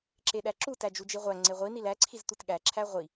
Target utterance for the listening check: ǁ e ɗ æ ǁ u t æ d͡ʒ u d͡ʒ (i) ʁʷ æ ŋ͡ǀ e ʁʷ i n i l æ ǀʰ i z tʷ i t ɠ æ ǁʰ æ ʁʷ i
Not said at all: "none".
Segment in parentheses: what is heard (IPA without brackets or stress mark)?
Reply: i